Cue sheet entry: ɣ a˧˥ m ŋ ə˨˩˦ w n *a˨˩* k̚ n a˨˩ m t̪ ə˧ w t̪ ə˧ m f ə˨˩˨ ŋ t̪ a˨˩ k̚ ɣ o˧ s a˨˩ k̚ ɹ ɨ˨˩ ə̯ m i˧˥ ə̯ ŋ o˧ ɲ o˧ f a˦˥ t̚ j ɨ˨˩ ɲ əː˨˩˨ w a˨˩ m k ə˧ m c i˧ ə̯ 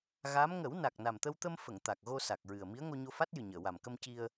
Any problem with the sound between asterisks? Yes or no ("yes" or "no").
no